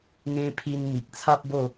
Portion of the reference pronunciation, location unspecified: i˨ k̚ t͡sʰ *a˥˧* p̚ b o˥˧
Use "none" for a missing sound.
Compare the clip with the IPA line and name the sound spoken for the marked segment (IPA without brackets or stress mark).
a˦